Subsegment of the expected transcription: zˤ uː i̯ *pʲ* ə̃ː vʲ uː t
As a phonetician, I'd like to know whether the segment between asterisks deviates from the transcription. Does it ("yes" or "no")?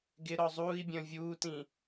yes